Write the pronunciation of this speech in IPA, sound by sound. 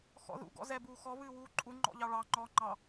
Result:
x ɔ̰ ð ṵ ɡ ɔ̰ z ɛ b uː x ɔ β ɨː w uː ǃʼ u ŋ͡ǃ ɔ̰ ʎ ɑ ɭ ɑ ŋ͡ǃ ɔː ŋ͡ǃ ɑ

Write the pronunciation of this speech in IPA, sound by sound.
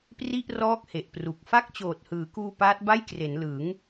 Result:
p r i˥˩ ʔ r ɔː˦˥ k̚ h e˨˩ ʔ p r u˨˩ k̚ f a˥˩ k̚ t͡ɕ oː˨˩ t̚ h ɯː˩˦ k uː˧ p aː˦˥ t̚ b a˥˩ j k r e˩˦ n l ɯ˩˦ ŋ

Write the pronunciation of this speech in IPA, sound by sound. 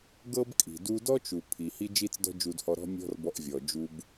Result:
ɡ ɤ˥ b kʼ i̤˩ d u˧ d ɔ˥ t͡ʃ u˩ pʰ i˩ h i˥ d͡ʒ i˥ t͡s d ɔ̤˥ d͡ʒ u˧ d h ɔ˧ ɾ ɔ̤˥ mʲ ɔ̤˥ r b ɔ˧ ʔ vʲ ɔ˩ d͡ʒ u˧ b

